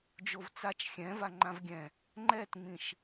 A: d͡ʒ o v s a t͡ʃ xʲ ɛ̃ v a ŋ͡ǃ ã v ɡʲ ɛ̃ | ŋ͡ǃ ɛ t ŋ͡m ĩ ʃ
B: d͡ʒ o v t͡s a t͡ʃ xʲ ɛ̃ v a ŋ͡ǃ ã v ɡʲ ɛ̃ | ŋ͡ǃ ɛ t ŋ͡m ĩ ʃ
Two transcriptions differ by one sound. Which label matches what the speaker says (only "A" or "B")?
B